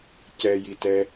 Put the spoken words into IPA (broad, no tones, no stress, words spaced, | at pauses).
cɛjitɛ